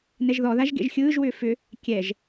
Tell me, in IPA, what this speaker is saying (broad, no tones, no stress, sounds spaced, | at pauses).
n ɛ ʒ ð ɔ ð a ʒ ɡ ḛ ʒ xʲ ɯː ʒ w ʏː f ʏ | kʲ ɛ ʒ